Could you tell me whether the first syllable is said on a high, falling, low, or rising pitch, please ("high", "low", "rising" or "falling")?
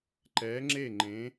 rising